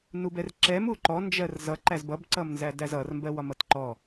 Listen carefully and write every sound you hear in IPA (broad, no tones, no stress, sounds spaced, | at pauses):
n u b ɛ r ǁ ɛ m u ǃ ɔ n d͡ʒ ɜ r z ʌ ǃ æ z b ʌ b ǀ ʌ m n z æ d æ z ʌ r m b ɜ w ɒ m ʌ t ǃ ɔ